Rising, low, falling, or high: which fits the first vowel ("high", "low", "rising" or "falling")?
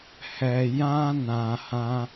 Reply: low